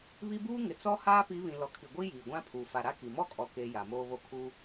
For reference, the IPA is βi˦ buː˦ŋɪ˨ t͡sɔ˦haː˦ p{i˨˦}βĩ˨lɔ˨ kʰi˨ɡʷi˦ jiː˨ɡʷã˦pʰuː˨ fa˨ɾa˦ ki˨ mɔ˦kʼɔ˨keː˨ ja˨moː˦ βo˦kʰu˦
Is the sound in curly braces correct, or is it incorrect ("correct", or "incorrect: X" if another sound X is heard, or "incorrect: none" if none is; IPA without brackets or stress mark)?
correct